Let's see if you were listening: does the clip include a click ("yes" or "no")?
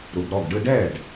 no